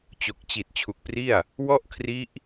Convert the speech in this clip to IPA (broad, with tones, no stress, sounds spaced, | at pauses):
t͡ɕ o˨˩ k̚ t͡ɕ i˨˩ t̚ t͡ɕʰ u˨˩ k̚ p r i˥˩ a̯ | w ɔ˥˩ ʔ kʰ r i˦˥ ʔ